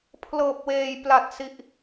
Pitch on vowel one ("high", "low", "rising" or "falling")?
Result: low